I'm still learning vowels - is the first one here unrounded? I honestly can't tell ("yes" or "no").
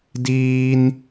yes